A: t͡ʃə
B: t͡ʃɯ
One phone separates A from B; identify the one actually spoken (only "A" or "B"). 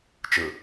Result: B